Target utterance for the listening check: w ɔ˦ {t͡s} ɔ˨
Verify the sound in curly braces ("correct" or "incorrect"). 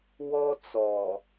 correct